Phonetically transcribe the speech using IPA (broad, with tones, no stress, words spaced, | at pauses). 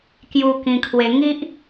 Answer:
kju˧kĩ˧kʰwe˧ ŋi˦ʔ